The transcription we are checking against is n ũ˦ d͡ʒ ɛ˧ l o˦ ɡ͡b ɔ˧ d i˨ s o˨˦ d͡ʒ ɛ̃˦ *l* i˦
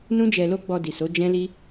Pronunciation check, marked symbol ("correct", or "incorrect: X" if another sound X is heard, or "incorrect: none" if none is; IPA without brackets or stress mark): correct